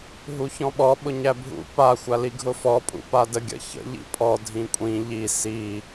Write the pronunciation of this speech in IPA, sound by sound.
ɦ u ç ɔ̃ ɓ ɔ ɓ ʊ ɲ æ bʱ ṵ p a xʷ a l i ɡʱ ʊ f ɔ pʼ ṵ p a d ə ɡʲ ə̰ ç ə̰ ʎ ḭ pʼ ɔ dʱ ĩ kʷʼ ĩ ʎ i s i

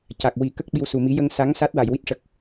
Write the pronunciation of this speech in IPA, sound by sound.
c a˨˩ k̚ w i˨˩˦ k ə˦˥ k̚ ɓ i˧ w s u˨˩ m i˧˥ j ə˧ ŋ s a˧˥ ŋ s a˦˥ t̚ w a˨˩˨ j w i˦˥ t̚ ʂ ə˨˩ k̚

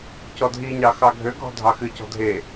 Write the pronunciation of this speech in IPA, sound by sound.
c ɔ dʱ i ɲ ɑ x ɑ ɡʱ ø ɡʱ ɔ̤ dʱ ɑ x ɨ c ɔ̤ dʱ e

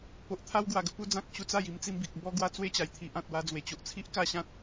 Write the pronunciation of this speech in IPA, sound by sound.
p o˨ ʔ t̪ʰ a˦ w ɡ w a˨˩ ɡ ə˧ p u˧ d͡z ã˦ k̚ ɕ u˧ t͡s a˥˧ j i˧ m t͡s i˧ m b i˨ k̚ b ɔ˦ ɡ w a˦ t͡s w e˦ t͡ɕ a˨˩ j t̪ʰ i˨ ʔ ã˨ t̚ w a˧ d͡z w e˨˩ t͡ɕ o˨ ʔ t͡sʰ i˦ ʔ k a˥˧ ɕ ã˦ t̚

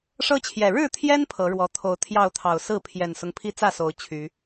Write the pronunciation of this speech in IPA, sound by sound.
ʂ ɤ˦ t͡ɕʰ j ɛ˨˩ ɻ ɻ̩˥˨ t̪ʰ j ɛ˦ n pʰ ɤ˨˦ ɻ w ɔ˨˦ t̪ʰ o˨˦ ʊ̯ t̪ʰ j ɑ˥˨ ʊ̯ t̪ʰ ɑ˨˩ ʊ̯ s ɹ̩˥˨ pʰ j ɛ˨˩ n s ʊ˦ ŋ pʰ i˦ t͡s ä˥˨ s o˨˦ ʊ̯ t͡ɕʰ y˨˦

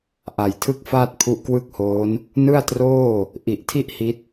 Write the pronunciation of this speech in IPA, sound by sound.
ʔ a˨˩ j tʰ ɯ˥˩ k̚ f aː˥˩ t̚ pʰ u˦˥ ʔ k w ɯ˥˩ k̚ h oː˦˥ n | n ɯ˥˩ a̯ t r oː˥˩ | ʔ i˨˩ ʔ tʰ i˥˩ ʔ h i˦˥ t̚

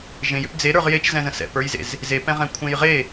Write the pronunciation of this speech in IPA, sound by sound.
ʒ ẽ j ʏ p d͡z e ɾ ə˞ ʁ j e t͡ʃ z ɛ̃ z ə̃ s ɛ̰ p ə˞ j z ḛ z | z e p ɛ̃ ʁ ɛ̃ kʷʰ ẽ j ʁ e

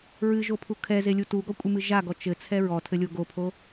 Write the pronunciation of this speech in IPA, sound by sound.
ɹ ɨ ʒ o pʰ u kʰ ɛ z e lʲ u t u ɡ ɔ kʷʼ ɨ m ɨ ʒ a ɡ ɔ t͡ʃ ɘ t͡sʰ ɛ ɹ ɔ tʰ ɘ lʲ o ɡ o pʰ o

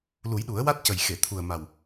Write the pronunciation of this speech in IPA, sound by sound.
l u˨˩˦ j ɗ u˨˩˦ ə̯ w a˦˥ t̚ c ə˨˩ j x e˨˩˨ t̪ʰ u˨˩ ə̯ m a˨˩ w

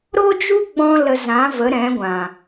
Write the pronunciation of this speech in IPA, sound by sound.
ɾ o˦ d͡ʒ u˦ ɡ͡b ɔ̃˧ l ə˧ z ã˨˦ v ə˨˦ ɾ ɛ̃˨˦ ɡʷ ã˨

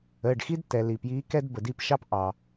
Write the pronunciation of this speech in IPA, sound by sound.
əː˩˧˩ ɖ x i˥ d tː ɛ˩ l i˩ p j iː˧˥ k ɛ˥ d b ə˩ d i˥˨ p ʃ ɑ˥ p ʔ ɑ˩

